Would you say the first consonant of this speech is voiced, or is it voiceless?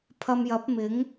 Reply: voiceless